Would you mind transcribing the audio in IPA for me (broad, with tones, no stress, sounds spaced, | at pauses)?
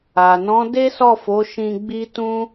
a˨ n ɔ̃˨˦ d e˦ s ɔ˦˨ f o˨˦ ʃ ĩ˧ ɡ͡b i˦ t ũ˦